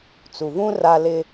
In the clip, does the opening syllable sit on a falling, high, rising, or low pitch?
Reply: low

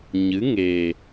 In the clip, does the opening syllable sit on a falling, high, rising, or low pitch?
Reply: rising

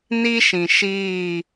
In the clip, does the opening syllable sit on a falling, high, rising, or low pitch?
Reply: high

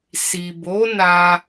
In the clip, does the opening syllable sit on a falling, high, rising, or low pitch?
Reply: low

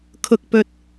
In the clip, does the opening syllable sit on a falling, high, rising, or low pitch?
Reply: high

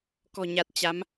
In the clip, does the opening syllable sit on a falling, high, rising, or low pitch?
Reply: low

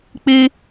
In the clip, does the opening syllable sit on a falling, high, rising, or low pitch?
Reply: high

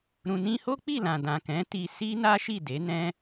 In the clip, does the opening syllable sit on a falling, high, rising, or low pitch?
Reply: low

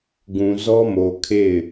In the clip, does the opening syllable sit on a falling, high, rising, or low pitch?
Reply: low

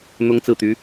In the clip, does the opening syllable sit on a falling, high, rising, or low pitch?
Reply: high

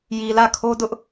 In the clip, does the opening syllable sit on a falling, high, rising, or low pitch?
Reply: low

